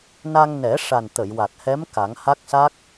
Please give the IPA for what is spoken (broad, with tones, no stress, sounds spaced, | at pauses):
n a˧ ŋ n ɛ˨˩˦ ʂ a˨˩ n t̪ ə˨˩˨ j w a˨˩ t̚ h ɛ˧˥ m k a˨˩˦ ŋ h a˦˥ k̚ s a˦˥ k̚